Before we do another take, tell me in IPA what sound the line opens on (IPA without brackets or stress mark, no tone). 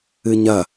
ɨ